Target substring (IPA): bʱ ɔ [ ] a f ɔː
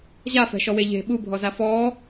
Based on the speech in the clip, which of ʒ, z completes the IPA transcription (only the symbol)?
z